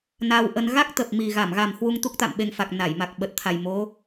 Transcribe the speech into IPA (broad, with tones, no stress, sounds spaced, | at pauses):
n a˧ w ʔ ə˧ n ɣ a˦˥ k̚ t̪ ə˨˩ p̚ m i˨˩ ɣ a˧˩ m ɣ a˨˩ m h w u˧ ŋ t̪ u˦˥ k̚ t̪ a̰˧˨ m ɓ e˧ ŋ f a˨˩ k̚ n a˧˩ j m a˨˩ k̚ ɓ ə˨˩ t̚ t̪ʰ a˨˩ j m o˨˦